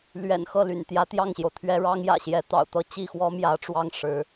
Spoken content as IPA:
lɥɛ̰˨˩nxɤ˥˩ ly̰˨˩n t̪jä˧˥t̪jɑ˥˩ŋɕjo˩ʊ̯t̪ʰɥɛ˥ ɻɑ˥ŋjä̰˨˩ɕjɛ˧˥ t̪ɑ̰˨˩ʊ̯t̪ɤ˥˧ t͡ɕi˥˩xwɔ˥ mjä˧˥ʈ͡ʂwɑ˥ŋ ʂɻ̩˧˥

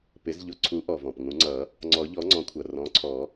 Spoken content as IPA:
pɪ˩˥zʎʊ˩˥ ǀʰu˩˥ʔɔ˩ vɔ̃˩pŋũ˨˩˦ŋ͡ǀʌ˨˩˦ | ŋ͡ǀɔ˨˩˦ʎɔ˩˥ŋ͡ǀɔ̃˩˥kʷʰʌ˩ rɔ̃˩˥ǀʰɔ˨˩˦

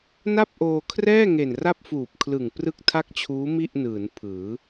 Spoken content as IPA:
na˥˩p̚ʔoː˧kʰrɛː˥˩ ŋe˨˩n ra˥˩p̚fuː˨˩p̚kʰlɯ˨˩ŋ prɯ˥˩k̚tʰa˥˩k̚t͡ɕʰuː˦˥ mi˥˩ʔnɯː˩˦n pʰɯː˩˦

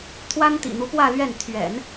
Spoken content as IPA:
t̪ʰwa˥nt̪ḭ˨˩n̪u˧˥ pwä˥˧lɥɛ˥˩n t̪ʰɥɛ̰˨˩˦n

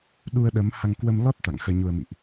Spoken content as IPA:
ɗu˧ə̯ɗə˨˦mha˧ŋ kwə˧m lɔ˦˥t̚ t̪a̰˧˨ŋxəː˧ɲu˧ə̯mḭ˧˨ʔ

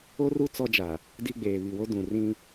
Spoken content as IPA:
o˦ru˦ t͡sɔ˦d͡ʒa˨ | di˦ɡ͡beː˨ βi˨wo˦ dũ˨ rĩ˦

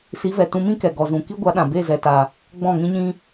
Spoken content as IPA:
si˨˦vɛ˨ tũ˧mĩ˦kɛ˨ ɡɔ˨zũ˨ ki˦ɡʷa˨˦ɗã˨ be˦˨ zɛ˧ta˧ | ɡ͡bɔ̃˦˨ŋĩ˦ɲĩ˦

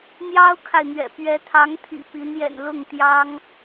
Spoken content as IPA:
n̪jɑ˥ʊ̯kʰa˨ɪ̯ n̪ɥɛ̰˨˩ pɥɛ˧˥t̪ʰɑ˧˥ŋt̪ʰḭ˨˩ pi˧˥njɛ̰˨˩n lʊ˥˩ŋt̪jɑ˥ŋ

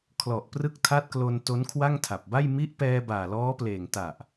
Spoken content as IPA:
kʰlɔ˨˩ʔprɯ˦˥k̚tʰa˦˥t̚klo˧n to˦˥nkʰwa˥˩ŋtʰa˨˩p̚ba˥˩j mi˦˥ʔpɛː˧ baː˨˩lɔː˦˥pleː˨˩ŋ ta˨˩ʔ

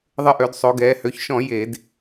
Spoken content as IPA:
ðˤə˧ʔø˩˧dsˤo˩˧ɡɛː˩˧ hø˩˧çʃɔ̃˧˩˧ je˧˩˧d

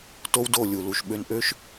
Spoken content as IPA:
to˦wdo˦˨ lʲu˨ lu˨ʃ ɓø˧nʔø˦ʃ

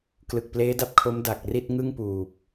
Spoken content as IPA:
klɯ˨˩k̚pleː˦˥da˦˥p̚ kʰo˦˥mda˨˩k̚ ri˥˩t̚ŋɯ˥˩ŋpuː˨˩p̚

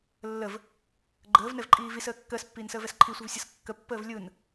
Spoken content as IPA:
lːəv | ɡ͡ǃəːvnɛvǃʼiː visəː kːəːspːiːnsəːvɛs ǃʰisʷəvsʲɯs kːəpːəːv lʲɯn

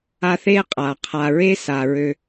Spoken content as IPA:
a˦θe˥ qʼa˩qʰa˨ɹe˦ sa˨ɹø˦

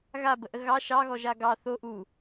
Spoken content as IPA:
ɣabəʔə ɣɑ ʃɑɣɔ ʒaɡɑ θo ʔu

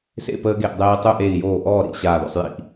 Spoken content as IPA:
sḛ˥˨ pəː˧ɡe˧˩ʔdˤeː˧i̯tˤɵ˥˨ ʔeː˧˩i̯joː˧˩ ʔɔː˥˨ɾḭ˥˨ ɕaː˧˩ðɔ̰˥˨sˤjḭ˥˨ʔ

